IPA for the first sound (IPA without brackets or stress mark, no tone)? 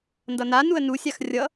n